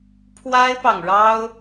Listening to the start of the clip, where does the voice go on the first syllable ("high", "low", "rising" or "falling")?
high